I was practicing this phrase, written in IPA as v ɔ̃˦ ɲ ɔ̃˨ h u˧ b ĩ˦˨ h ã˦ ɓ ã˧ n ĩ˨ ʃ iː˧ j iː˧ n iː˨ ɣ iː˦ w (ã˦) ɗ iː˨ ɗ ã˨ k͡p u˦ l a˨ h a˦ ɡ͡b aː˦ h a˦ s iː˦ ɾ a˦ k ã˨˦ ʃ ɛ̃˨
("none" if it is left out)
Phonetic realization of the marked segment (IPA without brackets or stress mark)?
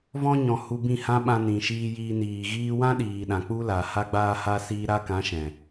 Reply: ã˦